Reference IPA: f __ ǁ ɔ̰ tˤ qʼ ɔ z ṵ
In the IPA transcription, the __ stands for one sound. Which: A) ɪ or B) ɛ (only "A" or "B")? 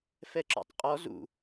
B